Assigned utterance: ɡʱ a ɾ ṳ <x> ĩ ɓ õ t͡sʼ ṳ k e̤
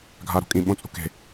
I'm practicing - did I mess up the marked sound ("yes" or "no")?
yes